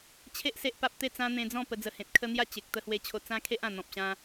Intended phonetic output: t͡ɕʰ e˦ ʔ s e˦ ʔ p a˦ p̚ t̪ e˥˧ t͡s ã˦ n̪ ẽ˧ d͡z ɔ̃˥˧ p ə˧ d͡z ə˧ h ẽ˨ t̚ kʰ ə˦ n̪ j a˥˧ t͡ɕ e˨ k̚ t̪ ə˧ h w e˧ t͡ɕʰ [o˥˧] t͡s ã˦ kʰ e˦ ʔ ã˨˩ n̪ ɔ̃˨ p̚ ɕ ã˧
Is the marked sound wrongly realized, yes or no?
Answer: yes